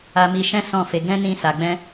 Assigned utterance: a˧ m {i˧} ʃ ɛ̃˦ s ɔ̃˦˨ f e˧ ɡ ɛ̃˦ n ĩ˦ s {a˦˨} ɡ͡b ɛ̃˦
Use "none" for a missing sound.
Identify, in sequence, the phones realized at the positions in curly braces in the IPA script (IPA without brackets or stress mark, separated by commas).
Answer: i˧, a˧